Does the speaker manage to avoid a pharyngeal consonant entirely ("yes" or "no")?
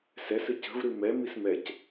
yes